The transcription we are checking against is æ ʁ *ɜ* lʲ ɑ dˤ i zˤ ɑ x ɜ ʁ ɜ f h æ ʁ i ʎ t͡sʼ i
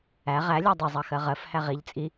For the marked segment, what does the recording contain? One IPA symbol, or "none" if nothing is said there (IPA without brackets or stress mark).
æ